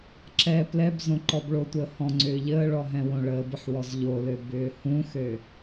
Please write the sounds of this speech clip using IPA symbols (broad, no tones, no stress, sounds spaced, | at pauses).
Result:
ǁ ɛ p l ɛ b z õ ǃ ɔ b ɭ o tʷ əː h ɔ̃ ŋ͡ǀ ʏː ʎ əː ɭ ɔ ɦ ɛ̃ w õ ɭ əː b ə ħ w ɔ z ʎ o l ø b ʏː h ũ x ø